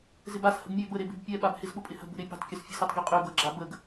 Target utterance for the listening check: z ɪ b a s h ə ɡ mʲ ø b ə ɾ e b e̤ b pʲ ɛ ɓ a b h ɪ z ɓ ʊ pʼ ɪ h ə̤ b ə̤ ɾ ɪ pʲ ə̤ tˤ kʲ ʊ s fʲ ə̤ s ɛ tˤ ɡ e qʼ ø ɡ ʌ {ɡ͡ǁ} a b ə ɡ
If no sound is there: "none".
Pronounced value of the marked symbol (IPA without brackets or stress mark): ɡ͡ǁ